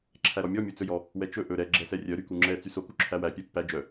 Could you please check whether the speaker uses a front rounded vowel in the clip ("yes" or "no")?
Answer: yes